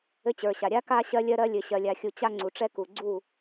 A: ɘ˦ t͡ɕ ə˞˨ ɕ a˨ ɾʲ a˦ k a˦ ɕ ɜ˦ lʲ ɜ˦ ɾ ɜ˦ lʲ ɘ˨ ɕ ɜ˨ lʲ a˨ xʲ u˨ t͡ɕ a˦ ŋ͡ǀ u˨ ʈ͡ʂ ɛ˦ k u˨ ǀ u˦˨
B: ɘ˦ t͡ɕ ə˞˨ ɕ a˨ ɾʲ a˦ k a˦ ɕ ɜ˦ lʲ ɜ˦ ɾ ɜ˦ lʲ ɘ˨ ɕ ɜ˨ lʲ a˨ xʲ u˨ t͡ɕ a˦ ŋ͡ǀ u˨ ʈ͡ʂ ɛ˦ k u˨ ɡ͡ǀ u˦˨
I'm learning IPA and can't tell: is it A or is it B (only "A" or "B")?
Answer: B